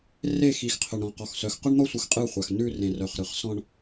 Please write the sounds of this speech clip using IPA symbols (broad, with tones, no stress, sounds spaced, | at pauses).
r e˦˨ x i˨ x qʰ œ˨ ɳ ɾ ɔ̃˨ q ɔ˨ x s œ˨ x q œ˦ ɳ n̪ ɔ˦ sʷ ɯ˨ x qʼ ɯ˦˨ χʷ a˨ x n ʉ˦˨ r ẽ˨ r œ˨ χ ɾ ɯ˨ χ s ɔ̃˦ ɳ